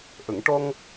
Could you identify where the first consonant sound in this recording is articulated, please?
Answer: glottal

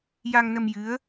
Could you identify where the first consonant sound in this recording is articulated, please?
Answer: palatal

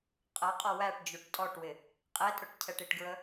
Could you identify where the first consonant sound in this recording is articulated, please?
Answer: uvular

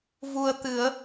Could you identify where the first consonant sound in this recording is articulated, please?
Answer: labial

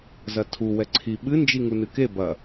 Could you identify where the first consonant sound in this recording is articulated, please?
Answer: alveolar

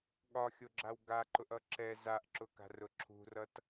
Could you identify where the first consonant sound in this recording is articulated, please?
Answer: velar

